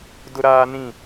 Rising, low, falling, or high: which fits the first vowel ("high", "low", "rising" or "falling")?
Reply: high